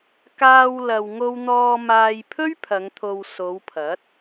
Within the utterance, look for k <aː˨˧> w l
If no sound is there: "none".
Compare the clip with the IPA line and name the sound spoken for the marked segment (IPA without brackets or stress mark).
aː˧